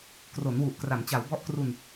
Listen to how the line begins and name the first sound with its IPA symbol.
k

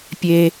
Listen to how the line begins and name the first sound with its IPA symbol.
pʲ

